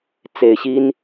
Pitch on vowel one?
low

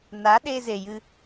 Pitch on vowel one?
rising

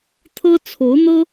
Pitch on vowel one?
high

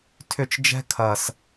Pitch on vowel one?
falling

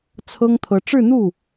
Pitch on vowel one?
high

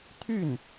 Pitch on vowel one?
falling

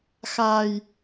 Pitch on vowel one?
low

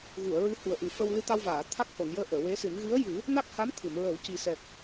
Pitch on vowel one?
low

